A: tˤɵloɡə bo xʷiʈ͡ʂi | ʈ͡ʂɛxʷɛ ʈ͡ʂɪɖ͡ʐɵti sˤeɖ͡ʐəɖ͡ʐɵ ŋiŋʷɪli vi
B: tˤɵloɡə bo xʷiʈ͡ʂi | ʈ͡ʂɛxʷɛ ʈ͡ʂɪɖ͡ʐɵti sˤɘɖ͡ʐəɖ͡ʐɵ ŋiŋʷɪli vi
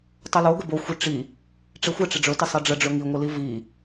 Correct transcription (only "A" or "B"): B